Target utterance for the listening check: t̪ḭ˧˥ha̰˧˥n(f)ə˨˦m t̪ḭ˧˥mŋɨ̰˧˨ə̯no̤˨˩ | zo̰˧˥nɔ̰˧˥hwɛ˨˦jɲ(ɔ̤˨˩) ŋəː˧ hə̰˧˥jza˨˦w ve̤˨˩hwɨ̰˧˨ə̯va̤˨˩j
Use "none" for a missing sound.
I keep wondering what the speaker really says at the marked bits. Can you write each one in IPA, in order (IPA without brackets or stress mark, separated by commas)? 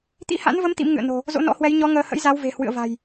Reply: v, ɔ˨˦